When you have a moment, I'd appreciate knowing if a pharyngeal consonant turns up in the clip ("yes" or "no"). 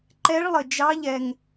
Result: no